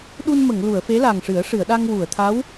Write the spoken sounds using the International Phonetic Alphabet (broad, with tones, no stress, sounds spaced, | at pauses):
ɗ u˧ n m ə˨˩˨ ŋ l u˨˩˨ ə̯ f e˧˥ l a˨˩ ŋ ʂ ɨ˨˩˦ ə̯ ʂ ɨ˨˩˨ ə̯ ɗ a˧ ŋ w u˨˩˨ ə̯ t̪ʰ a˧˥ w